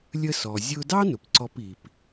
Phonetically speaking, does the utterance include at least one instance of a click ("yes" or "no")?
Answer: yes